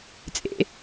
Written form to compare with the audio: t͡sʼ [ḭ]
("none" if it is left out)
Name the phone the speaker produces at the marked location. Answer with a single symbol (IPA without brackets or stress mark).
ḛ